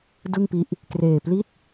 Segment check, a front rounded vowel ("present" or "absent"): absent